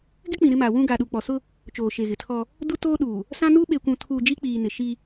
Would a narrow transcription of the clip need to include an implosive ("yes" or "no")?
yes